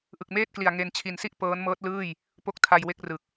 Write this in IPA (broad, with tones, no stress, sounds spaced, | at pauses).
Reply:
ʔ ɯ˨˩ k̚ m eː˥˩ t̚ k l i˨˩ a̯ ŋ e˧ n t͡ɕʰ i˨˩ n s i˥˩ ʔ p ɤː˦˥ n m ɤː˦˥ t̚ l ɯː˥˩ j | p o˦˥ k̚ tʰ a˧ j w e˦˥ k̚ r ɯ˨˩ k̚